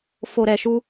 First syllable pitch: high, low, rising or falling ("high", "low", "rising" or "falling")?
low